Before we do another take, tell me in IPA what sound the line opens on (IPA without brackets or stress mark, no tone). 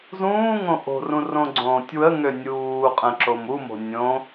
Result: z